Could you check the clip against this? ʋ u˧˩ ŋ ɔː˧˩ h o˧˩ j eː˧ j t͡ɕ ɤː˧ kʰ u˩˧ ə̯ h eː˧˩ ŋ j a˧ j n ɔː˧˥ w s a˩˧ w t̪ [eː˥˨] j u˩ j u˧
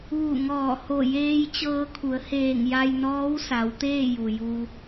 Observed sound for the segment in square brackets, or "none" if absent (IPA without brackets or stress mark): eː˥˨